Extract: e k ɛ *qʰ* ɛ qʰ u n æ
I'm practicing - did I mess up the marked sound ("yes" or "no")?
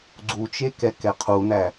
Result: yes